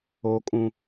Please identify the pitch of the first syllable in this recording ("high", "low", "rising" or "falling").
high